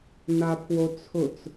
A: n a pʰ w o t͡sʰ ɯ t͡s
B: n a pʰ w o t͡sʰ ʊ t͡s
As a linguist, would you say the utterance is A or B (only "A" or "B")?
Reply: B